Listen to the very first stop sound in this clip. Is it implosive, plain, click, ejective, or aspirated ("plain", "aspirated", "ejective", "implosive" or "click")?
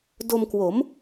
plain